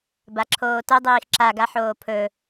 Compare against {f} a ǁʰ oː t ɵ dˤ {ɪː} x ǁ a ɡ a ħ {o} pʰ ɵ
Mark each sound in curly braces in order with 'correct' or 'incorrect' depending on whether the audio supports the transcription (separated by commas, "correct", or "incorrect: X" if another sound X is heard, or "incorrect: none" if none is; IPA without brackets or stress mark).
incorrect: b, incorrect: iː, incorrect: oː